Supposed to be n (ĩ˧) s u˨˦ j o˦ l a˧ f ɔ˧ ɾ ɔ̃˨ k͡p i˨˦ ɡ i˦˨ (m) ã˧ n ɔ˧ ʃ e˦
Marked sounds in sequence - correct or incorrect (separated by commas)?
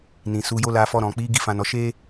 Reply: incorrect, incorrect